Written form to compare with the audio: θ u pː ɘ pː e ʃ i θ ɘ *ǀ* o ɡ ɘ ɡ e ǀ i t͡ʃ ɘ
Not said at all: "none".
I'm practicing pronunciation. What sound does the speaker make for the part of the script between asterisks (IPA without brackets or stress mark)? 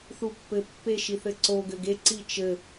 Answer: ǀ